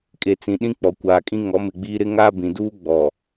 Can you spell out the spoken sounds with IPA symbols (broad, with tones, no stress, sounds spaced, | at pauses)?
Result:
kʼ e˨ t͡s ĩ˨ ɗ ĩ˦ k͡p ɔ˨ kʷ aː˨ kʼ ĩ˦ ŋ ɔ˨˦ m ɪ˨ ɡ͡b iː˦ ɾ ɪ˦ ŋ a˦ b ĩ˨ d uː˦ ɡ͡b ɔ˨